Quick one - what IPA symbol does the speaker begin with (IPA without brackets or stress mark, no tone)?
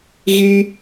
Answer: ɣ